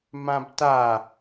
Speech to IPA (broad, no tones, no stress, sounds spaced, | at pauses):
m ã b t a